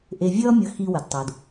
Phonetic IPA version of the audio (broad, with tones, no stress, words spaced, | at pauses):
ʔe˨vʲʌː˥mʲʌ˨ xi˨wə˩dtˤo˩d